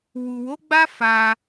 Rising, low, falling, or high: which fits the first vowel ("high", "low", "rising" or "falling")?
low